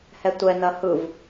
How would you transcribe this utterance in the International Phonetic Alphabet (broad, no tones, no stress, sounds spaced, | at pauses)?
h ɛ tʷ ɛ n ɐ h ɯ v